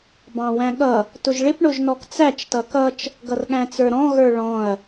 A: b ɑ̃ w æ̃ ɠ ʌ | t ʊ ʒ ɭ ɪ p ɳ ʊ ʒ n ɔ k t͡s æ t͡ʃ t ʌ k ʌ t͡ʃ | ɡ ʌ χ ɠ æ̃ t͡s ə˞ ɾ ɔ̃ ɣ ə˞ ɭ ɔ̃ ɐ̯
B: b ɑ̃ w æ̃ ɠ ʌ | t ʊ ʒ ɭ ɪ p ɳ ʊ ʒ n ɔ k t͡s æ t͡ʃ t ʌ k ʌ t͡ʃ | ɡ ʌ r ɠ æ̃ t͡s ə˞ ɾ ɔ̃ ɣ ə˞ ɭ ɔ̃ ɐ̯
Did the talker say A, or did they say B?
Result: B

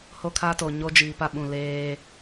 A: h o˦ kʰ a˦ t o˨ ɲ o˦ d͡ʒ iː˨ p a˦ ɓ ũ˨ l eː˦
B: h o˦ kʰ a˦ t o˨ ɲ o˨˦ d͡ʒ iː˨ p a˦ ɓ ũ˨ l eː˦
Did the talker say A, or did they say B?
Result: A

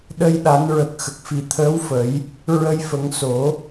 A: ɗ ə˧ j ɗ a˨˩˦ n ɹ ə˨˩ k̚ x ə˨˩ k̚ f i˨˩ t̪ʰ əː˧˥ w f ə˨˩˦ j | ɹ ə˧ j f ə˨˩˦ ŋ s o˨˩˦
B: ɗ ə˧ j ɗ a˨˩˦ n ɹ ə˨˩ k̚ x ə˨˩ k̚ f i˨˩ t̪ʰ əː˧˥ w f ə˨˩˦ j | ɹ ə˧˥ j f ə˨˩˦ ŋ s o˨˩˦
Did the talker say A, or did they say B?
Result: A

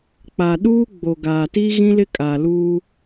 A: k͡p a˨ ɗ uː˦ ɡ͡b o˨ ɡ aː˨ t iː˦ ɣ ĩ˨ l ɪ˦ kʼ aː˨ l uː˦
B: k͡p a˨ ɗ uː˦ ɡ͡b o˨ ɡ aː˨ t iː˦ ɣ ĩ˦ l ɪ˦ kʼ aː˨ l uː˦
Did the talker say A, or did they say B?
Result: B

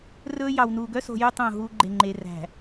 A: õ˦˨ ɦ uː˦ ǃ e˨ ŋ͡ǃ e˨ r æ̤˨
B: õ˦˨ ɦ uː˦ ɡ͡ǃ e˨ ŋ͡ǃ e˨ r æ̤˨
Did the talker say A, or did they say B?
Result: B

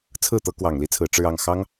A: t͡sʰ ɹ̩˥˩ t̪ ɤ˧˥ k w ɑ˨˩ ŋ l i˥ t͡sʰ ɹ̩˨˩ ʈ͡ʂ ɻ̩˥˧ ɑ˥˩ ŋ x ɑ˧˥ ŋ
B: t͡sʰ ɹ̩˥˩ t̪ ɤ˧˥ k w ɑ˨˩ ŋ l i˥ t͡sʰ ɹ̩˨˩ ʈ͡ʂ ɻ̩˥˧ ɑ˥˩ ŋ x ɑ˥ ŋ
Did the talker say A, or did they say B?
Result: B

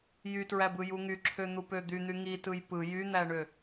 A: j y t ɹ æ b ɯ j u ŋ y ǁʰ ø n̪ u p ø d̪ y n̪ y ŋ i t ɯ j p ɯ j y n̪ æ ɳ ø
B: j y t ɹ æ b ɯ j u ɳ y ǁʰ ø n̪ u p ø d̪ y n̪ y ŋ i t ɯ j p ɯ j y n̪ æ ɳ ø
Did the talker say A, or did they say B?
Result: A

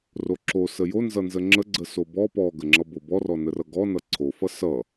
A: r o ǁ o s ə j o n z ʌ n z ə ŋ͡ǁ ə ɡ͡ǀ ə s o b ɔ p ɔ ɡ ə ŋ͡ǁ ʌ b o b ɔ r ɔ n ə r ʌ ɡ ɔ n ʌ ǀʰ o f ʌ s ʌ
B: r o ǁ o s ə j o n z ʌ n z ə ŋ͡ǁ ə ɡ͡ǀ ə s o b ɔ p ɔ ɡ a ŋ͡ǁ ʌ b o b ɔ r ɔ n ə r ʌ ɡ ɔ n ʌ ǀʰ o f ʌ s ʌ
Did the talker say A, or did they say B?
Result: A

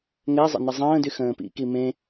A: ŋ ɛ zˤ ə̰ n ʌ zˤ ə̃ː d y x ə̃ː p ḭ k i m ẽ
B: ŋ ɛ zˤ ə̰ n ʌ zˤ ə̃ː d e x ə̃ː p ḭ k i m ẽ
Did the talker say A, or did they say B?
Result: A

